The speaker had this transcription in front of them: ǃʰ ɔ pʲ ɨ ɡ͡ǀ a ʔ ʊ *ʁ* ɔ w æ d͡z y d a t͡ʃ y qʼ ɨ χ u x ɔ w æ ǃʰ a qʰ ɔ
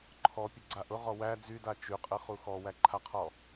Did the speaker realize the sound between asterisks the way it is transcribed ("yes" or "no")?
yes